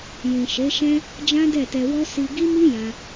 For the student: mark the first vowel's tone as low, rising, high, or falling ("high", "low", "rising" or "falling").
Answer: low